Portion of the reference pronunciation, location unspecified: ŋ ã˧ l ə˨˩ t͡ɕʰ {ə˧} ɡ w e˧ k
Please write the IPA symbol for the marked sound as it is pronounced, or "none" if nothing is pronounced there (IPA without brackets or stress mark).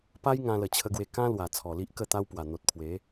ə˧